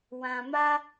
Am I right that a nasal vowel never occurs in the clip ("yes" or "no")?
no